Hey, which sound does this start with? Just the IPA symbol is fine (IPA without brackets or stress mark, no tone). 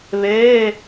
β